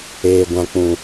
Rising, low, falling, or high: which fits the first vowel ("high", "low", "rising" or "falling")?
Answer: low